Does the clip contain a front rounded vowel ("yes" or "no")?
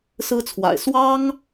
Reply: no